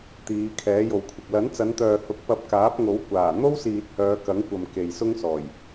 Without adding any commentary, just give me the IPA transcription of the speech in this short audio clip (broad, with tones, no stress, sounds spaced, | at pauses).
t̪ iː˨˧ kʰ ɛː˨˥ j o˨ w kʷʰ ɪ˨ k̚ l ɐ˨˥ n t͡s ɐ˨˧ n t̪ œː˨ h ʊ˨˥ k̚ p ɐ˧ p̚ k aː˨˥ p̚ ŋ o˨˥ w kʷ aː˨˩ n̪ o˥ w s iː˨ t̚ h œː˨˧ k ɐ˨˥ ŋ kʷ ɐ˨ m k e˨ j s ʊ˥ ŋ s ɔː˨˩ j